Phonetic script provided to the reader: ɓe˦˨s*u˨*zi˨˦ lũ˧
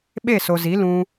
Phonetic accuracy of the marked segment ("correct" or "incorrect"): incorrect